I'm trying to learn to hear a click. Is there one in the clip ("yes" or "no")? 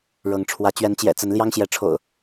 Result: no